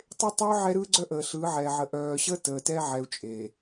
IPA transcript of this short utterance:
tˤe˦tˤœː˦ ʕɛ˦ɾɯː˦ɡ͡ǀœ˦ ʔəː˨ɬɯː˨˦ʕɛː˨ ʕə˨ ʔœː˨ɕəː˦ təː˨tɛ˦ʕɛ˨u̯ t͡ʃʼe˨

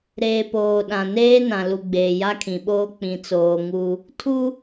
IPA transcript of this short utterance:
ɾeː˨poː˨ɗã˨neː˦ nã˨lu˨ɡ͡beː˨ ja˦kʰĩ˨ɓoː˦ k͡pĩ˨t͡soː˨ ŋu˦ | tʰu˦

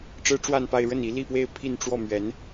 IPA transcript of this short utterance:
ʈ͡ʂɻ̩˥ʈ͡ʂwa˥˧npa˥˧ɪ̯ ɻə˥˩ni˧˥ li˥˧pwe˥˧ɪ̯ pʰi˥˧nʈ͡ʂwɔ˥˩ mɥɛ˧˥n

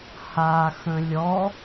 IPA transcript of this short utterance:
haxə̃ lʲɔ

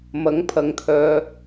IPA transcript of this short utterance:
mɐ˨˥ŋpʰɐ˨˧ŋt̪ʰœː˧

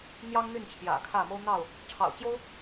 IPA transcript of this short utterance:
n̪jɑ˦ŋ n̪y˥˨nt͡ɕʰjä̰˨˩kʰä˥˨ mo˦ʊ̯n̪ɑ˥˨ʊ̯ | ʈ͡ʂʰɑ̰˨˩ʊ̯t͡ɕjo˦ʊ̯

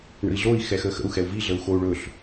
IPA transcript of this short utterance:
ɳə̰i̯ɮoi̯ xɛxəːxə̰u̯ xɛu̯vi ɮəu̯xou̯ɭɵɬ

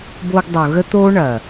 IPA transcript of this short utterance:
boː˧ɡdˤo˨ ɣə˦t̪oː˦ ɳɐː˨

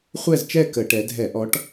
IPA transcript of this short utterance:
χʷɛ˥˧zt͡ʃɛ˥˧ kə˧˩˧ʈɛ˨˦ dʱɛ˧˩˧ʔɔ˨˦ʈ

